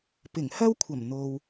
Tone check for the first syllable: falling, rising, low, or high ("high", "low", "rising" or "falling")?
low